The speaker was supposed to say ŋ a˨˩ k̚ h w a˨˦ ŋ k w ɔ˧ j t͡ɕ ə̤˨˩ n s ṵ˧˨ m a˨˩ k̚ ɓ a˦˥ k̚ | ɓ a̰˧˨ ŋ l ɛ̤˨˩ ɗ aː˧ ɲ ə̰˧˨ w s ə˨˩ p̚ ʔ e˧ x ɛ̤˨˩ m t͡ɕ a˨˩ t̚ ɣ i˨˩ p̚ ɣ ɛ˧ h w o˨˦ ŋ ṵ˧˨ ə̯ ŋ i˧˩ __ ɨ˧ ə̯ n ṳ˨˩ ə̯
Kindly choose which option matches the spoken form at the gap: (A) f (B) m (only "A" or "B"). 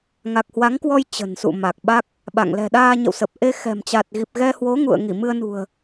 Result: B